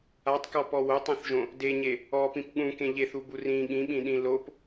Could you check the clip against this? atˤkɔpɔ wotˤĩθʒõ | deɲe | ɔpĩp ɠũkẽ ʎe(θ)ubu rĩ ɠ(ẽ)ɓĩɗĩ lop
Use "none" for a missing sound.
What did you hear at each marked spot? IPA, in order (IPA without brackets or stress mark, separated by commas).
θ, ĩ